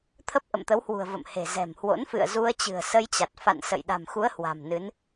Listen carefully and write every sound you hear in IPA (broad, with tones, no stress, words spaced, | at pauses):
t̪ʰə˦˥p̚ʔə̰˧˨mt̪ə˨˦whwṳ˨˩ə̯ və̰˧˨mhe̤˨˩zɛ̤˨˩mhwo̰˧˥n fɨ̰˧˨ə̯ zu˧ə̯t͡ɕɨ̤˨˩ə̯sə˧jt͡ɕa˨˩t̚ fa̰˧˨nsə̰˧˨j ɗa̤˨˩mxu˨˦ə̯ hwa̤˨˩mnɨ˨˦n